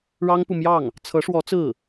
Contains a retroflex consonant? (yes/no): yes